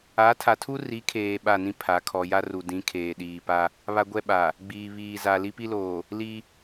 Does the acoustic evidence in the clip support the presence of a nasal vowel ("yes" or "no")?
yes